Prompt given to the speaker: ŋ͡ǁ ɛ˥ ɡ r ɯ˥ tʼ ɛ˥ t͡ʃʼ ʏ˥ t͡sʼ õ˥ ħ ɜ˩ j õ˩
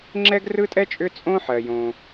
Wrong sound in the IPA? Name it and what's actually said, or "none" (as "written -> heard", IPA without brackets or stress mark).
none